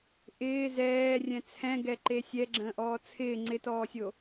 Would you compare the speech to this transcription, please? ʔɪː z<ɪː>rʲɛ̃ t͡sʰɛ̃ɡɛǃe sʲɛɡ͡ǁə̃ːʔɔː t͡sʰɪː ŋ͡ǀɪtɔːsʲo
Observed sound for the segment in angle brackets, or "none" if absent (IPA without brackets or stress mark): ɛː